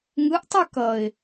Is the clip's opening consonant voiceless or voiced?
voiced